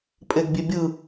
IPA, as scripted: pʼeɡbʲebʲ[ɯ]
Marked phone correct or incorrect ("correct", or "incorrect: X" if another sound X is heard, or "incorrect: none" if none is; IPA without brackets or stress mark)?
correct